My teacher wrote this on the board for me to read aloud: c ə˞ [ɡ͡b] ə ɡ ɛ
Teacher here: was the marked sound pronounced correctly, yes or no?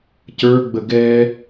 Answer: yes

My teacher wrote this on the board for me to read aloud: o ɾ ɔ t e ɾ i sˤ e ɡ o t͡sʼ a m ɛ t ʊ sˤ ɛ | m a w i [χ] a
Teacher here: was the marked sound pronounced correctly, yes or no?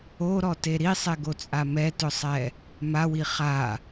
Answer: yes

